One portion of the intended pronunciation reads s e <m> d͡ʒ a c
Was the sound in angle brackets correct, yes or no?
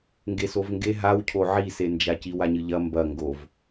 no